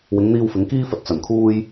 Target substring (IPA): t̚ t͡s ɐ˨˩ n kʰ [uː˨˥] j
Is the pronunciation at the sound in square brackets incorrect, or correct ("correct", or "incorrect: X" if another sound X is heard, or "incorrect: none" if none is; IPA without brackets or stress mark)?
incorrect: uː˧